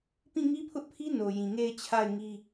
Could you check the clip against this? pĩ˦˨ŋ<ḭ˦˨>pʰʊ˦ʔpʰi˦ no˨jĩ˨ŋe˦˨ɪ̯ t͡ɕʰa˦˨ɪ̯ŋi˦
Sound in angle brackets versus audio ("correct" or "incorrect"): incorrect